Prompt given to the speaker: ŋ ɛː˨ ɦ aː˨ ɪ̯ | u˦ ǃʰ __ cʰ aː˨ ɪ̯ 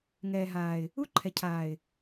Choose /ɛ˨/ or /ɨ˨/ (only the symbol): ɛ˨